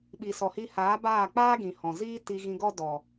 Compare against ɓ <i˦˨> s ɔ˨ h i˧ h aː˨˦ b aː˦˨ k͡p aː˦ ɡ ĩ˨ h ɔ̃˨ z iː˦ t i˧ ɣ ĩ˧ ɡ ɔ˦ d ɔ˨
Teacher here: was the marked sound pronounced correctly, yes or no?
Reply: no